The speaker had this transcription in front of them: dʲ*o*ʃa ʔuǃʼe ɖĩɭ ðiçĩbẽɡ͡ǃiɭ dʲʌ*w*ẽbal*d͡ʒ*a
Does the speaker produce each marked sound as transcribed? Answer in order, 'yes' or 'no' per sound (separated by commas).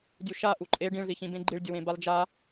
no, yes, yes